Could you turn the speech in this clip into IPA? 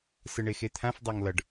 sɯɳexet̪ʰãf dˤaŋlʌɖ

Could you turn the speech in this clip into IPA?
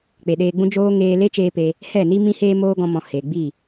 k͡pe˨ɗeː˧ɡ͡bũ˦ d͡ʒoː˧ ŋeː˧le˦t͡ʃeː˧ pe˧ | hɛ˦˨ni˦ mĩ˦heː˦moː˦ ɡɔ̃˧mɔ̃˨ he˨ɡ͡bi˦˨

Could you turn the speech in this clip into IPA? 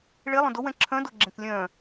ɭelˠœ̃ dowɛ̃ ǁʰœ̃doɡ͡ǁẽk lʲœ̃

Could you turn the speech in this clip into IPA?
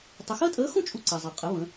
tˤə˧ xəː˥tʼəː˧˥xũ˥ t͡ʃʼu˧ǀɛ˩zˤʌ˩ qʼə˩˧ βə̃˩˧

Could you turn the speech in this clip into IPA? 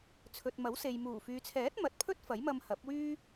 t͡sʰɵ˨t̚mɐ˨˥wse˨j muː˨˩fyː˨t͡sʰɛː˨˥t̚ mɐ˨˥t̚ pʰɵ˥t̚fɐ˨˥jmɐ˧m hɐ˨˥p̚wyː˥

